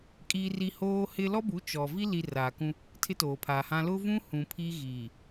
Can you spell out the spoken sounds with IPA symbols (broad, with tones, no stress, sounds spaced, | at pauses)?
kʼ iː˦ r i˦ h oː˦ h ɪ˦ l ɔ˦ b u˨˦ t͡ʃ ɔ˨ v i˦ l i˨ r aː˨ k ũ˦ | tʰ ɪ˦ t oː˨ pʰ aː˨ h ã˦ l ʊ˦ v ũ˦ h ũ˨ pʰ i˦ ɣ iː˨